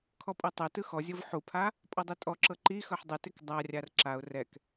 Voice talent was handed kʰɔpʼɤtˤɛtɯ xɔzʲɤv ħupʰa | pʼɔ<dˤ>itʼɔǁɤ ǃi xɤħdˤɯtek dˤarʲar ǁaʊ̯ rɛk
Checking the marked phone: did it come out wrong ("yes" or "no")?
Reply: no